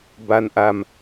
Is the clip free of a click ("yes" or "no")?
yes